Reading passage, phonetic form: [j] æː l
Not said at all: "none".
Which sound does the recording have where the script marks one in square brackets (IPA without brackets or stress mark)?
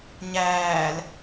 ɲ